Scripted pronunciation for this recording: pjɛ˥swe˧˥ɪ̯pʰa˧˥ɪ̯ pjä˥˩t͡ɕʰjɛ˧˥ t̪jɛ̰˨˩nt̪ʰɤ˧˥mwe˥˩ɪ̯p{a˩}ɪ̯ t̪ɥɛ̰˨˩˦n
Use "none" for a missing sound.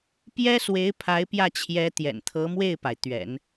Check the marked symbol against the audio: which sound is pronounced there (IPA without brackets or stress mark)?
a˩